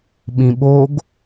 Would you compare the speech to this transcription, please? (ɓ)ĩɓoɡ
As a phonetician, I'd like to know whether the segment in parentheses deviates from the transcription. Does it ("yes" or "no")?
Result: no